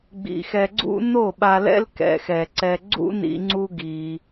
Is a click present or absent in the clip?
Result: present